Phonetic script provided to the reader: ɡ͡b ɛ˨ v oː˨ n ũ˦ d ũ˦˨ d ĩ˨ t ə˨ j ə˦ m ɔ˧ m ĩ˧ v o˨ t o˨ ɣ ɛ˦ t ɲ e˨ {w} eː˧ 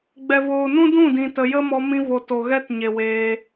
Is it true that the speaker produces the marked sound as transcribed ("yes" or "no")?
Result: yes